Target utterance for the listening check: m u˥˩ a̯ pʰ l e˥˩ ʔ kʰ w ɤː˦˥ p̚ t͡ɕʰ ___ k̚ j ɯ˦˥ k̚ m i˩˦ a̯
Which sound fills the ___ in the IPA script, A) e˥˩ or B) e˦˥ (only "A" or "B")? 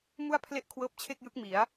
A